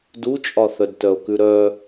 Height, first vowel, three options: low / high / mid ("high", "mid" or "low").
high